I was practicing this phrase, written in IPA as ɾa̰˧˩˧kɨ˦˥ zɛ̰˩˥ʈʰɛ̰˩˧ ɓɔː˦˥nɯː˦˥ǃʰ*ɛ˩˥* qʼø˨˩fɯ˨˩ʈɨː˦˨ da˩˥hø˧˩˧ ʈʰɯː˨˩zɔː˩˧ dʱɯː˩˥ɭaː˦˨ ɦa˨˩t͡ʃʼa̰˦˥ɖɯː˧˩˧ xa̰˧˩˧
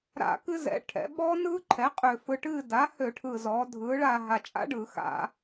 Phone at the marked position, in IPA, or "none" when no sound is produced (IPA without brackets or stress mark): ɛ˩˥